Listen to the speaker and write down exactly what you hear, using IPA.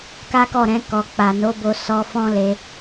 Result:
k a˦ k ɔ˦˨ ɾ ɛ̃˧ k ɔ˨ k͡p a˨ n o˨˦ b o˧ s ɔ˧ f ɔ̃˦ l e˧

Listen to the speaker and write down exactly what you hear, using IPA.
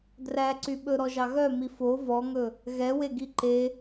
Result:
d r æ ǀ y ɓ ɵ ɾ ɔ ʒ ɑ ɣ œ m i f o v ɔ ŋ ɵ | ɣ ɛ w e ɡ i ǃ e

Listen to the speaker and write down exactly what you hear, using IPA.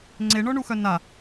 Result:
ŋ͡ǀ e ɳ ɔ ɳ u x œ n a

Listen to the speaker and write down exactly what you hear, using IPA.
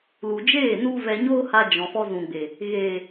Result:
l u˨ d͡ʒ eː˦˨ n u˦ v ɛ˧ ɲ oː˦ h a˧ d͡ʒ ɔ̃˨ f ɔ˧ z ũ˨ ɡ͡b e˨ | ɣ eː˨

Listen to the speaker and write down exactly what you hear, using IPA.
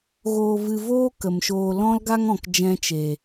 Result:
ɣ oː˧ v ɨ˧ v oː˦ k ə˨ m ʃ oː˧ l ɔ̃˦ l ɡ a˦ ŋ ɔ̃˨ k d͡ʒ ɛ̃˧ t͡ʃ e˨

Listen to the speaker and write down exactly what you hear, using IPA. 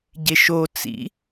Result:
ɟ e ʃ o t͡s ḭ

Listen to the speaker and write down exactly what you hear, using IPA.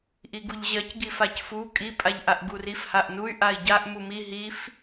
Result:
ʔ i ɡ u ʎ ʑ ɜ c ɡ i f a c f u kʼ i pʼ a ʎ ʔ a ʔ ɡ u r i f h a ʔ n u y̯ ʔ a i̯ ɟ a ʔ m u m i ɦ i f

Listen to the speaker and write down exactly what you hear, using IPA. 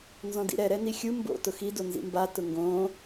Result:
n z ɔ̃ d ḭ ɾ ɛ ɾ ɛ n i xʲ u m b o̰ t ʊ x i d o n z ḭ m b a t ʊ ŋ ɡ õː

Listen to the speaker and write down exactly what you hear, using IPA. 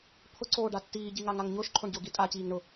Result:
pʰ ʊ ǀ oː ɖ a tː iː ɟ i ŋ a ŋ a ŋ ɲ ʊː ʃ ǃʰ o ɳ ɟ ʊː ɡ i tʼ a c iː ŋ ɳ ʊ

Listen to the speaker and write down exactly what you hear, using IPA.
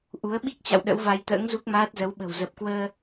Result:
ʔ u˨˦ ə̯ ɓ i˦˥ k̚ t͡ɕ a̰˧˨ w ɗ ə̰˧˥ w v a˧ j t̪ ə̰ː˧˥ ŋ z u˦˥ k̚ m aː˦˥ t̚ z ə˨˦ w ɓ ə̤˨˩ w z ə˨˩ p̚ k w əː˧

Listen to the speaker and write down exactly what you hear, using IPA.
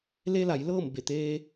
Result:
l e˧ l a˩˧ j l ɤː˥˨ m b e˧˩ t̪ eː˧

